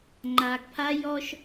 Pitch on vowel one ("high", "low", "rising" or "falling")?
low